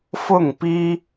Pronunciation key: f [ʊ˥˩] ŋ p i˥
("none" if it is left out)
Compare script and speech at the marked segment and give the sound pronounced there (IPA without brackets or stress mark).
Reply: ʊ˥˩